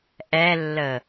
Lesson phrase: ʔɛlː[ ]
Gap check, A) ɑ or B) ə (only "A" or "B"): B